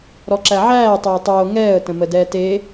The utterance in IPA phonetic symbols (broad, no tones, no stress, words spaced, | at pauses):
ɾɔǁæʕæː tˤoːtˤoː ŋɛːə̯ tə̃mədɛːte